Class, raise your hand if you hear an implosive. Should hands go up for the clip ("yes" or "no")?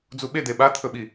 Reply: yes